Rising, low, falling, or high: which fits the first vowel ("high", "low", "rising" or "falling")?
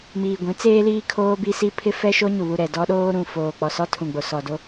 low